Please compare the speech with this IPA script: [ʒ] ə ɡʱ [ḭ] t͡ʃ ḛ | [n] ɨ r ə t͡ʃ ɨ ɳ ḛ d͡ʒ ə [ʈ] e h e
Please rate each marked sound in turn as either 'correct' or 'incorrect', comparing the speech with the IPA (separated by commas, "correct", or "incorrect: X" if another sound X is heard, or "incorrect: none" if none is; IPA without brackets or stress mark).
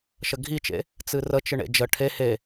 incorrect: ʃ, incorrect: i, incorrect: t͡s, incorrect: ʈʰ